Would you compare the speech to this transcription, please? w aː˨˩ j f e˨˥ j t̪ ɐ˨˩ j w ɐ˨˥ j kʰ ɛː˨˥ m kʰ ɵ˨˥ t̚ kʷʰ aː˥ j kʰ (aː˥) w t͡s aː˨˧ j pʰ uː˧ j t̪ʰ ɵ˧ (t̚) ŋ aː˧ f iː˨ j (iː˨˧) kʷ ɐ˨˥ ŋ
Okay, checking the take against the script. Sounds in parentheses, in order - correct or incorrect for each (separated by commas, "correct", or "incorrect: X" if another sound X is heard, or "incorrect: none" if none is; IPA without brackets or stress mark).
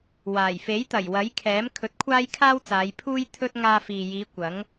correct, correct, correct